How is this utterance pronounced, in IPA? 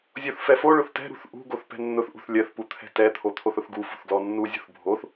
zʲ o θ f ɛ f o ɭ ʊ θ t ɛ̤ ɾ ṳ θ ʔ ṳ ɡ o θ p ɛ̤ nː ʊ θ ʔ ṳ θ lʲ ɜ θ p u t̪ʰ ɛ̤ t ɛ t̪ʰ o t̪ʰ o θ ʊ θ ɡ u f ṳ θ ɡ l ɔ nː u zʲ ṳ θ bʱ o θ

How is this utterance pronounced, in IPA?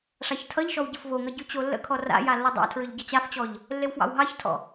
ʂ a ç tʰ ʌ ʎ ʃ ɔ w ɟ ə f v o ŋ ʌ ɟ ʉ t͡ɕ o lː ə̰ kʰ ɔ r a̰ j a lː ʌ dˤ ɑ̰ tʰ ɹ ʏ ʎ ɟ ʌ t͡ɕ a f t͡ɕ ɔ ʎ | lː e w f w ɑ̰ w ɦ ɑ ç tʰ ɔ̰

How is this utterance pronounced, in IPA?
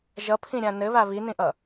ʒ ʌ pʰ ĩ ɾʲ ã n ɘ β a β i n ĩ ʔ ʌ

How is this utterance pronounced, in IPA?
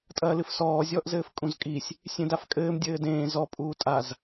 tʼ ɐː l ɨ f s ɔː zʲ ɔː ʔ z ɘː f kʼ ũ z kʼ i sʲ | sʲ ẽ d a f kʼ ɘː m dʲ ɘː d ẽː z ɔ pʼ uː tʼ a z

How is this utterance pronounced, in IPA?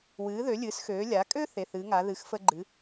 w ɨː˩˧ ð ø˩˧ lʲ ɨː˩˧ s x øː˩˧ lʲ a˩˧ kʼ ø˦ θ e˩˧˩ θ ɨ˩˧ ŋ a˩˧ ð ɨ˨˥ x f ə˦ ɡ͡ǃ ɨ˨˥

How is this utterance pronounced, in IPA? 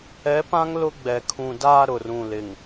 ɛ˨˦ p ã˦ ŋ l ʊ˦ ɡ͡b ɛ˨ kʰ ũ˨ d aː˦ ɾ ʊ˨ r ũ˨ l ɪ˨ ŋ

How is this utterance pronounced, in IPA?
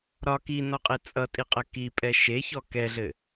ɾ ɒ k i n ɔ qʼ e t͡sʼ ʌ tʼ i qʼ ə k i pʼ ɛ ʃ e ç ɔ k ɛ ɮ ɘ

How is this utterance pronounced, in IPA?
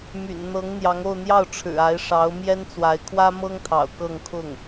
m y̰˨˩ n n̪ ɤ˧˥ ŋ n̪ j ɑ˧˥ ŋ o˥˧ ʊ̯ n̪ j ɑ˥˩ ʊ̯ ʈ͡ʂʰ ɻ̩˨˩ a˧˥ ɪ̯ ʂ ɑ˧˥ ʊ̯ m j ɛ˥ n t͡s w a˧˥ ɪ̯ kʰ w ä˥ m ɤ˥ ŋ t̪ʰ ɑ̰˨˩ ʊ̯ k ɤ˥˧ ŋ kʰ ʊ˥˩ ŋ

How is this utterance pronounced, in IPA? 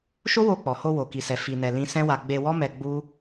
ʃ o˦ w o˧ k͡p ɔ˨ h o˧ w o˧ k i˧ s ɛ˧ f i˧ n ɛ˧ l ĩ˦ s ɛ̃˦ w a˧ ɡ͡b e˧ w ɔ˦ m ɛ˧ ɡ͡b u˦

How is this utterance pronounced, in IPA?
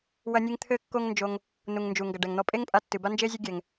w ɐ˧ nʲ ɨ˧ ŋ t̪ʰ ɘ˥ kː o˥ ŋ n d͡ʒ o˧ ŋ | n u˩ ŋ n d͡ʒ u˩ ŋ ɡ ɐ˩ ɖ ɛ˩ ŋ n̪ ɔ˧ pʼ e˥ ŋ pʼ a˧ tː ɨ˩ b a˥ n d͡ʒ e˥ zʲ ɘ˥ ɡʲ ɛ˩ ŋ

